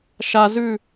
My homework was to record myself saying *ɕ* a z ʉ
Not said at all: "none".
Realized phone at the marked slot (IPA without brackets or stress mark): ʃ